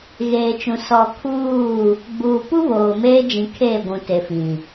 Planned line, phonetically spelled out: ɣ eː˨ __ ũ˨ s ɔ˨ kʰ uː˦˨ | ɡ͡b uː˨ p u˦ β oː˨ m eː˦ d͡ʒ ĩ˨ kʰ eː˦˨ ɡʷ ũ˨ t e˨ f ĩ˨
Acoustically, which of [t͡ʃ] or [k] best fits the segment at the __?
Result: t͡ʃ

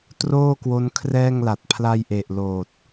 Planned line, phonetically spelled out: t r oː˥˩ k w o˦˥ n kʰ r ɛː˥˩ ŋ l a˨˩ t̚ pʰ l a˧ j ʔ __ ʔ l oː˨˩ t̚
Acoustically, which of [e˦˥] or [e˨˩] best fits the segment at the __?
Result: e˨˩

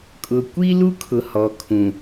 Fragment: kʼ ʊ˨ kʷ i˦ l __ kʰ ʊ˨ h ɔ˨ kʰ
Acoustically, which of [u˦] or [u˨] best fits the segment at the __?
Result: u˦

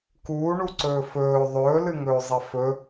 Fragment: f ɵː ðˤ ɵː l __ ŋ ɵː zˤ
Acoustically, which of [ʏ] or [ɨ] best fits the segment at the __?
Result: ɨ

